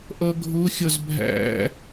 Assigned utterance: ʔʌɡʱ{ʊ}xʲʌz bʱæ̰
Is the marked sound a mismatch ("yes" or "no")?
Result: no